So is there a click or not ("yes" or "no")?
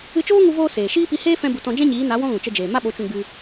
no